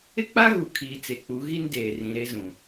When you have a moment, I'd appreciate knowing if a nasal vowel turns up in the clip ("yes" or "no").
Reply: yes